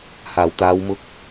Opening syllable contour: low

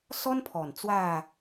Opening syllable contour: high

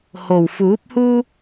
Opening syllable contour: low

